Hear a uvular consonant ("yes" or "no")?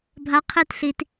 yes